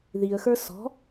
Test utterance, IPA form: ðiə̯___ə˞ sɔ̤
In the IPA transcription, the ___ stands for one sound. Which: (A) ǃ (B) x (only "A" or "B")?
B